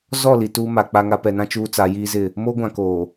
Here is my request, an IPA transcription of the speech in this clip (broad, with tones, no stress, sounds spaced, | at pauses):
z ɔ˦˨ l i˨ t uː˦ m a˨ k͡p a˦ ŋ a˦ p ɛ˨ n ã˦ t͡ʃ uː˦ t͡s a˨˦ j iː˦ z ɪ˦˨ | m o˦ ɡʷ ã˨ k oː˨